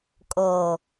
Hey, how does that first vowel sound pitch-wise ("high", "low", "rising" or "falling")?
low